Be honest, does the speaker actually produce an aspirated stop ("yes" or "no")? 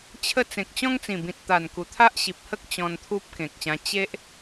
yes